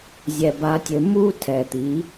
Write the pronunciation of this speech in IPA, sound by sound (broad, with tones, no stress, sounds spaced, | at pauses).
zʲ ɛ˨ b a˧ tʲ ɘ˧ m u˦ tʰ ɛ˨ t̪ i˨˦